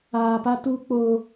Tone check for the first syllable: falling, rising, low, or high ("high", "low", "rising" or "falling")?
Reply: low